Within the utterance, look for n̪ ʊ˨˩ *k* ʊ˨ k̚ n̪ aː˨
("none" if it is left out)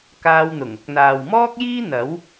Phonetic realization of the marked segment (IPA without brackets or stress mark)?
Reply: ŋ